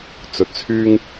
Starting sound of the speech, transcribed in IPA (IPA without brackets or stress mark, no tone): t͡s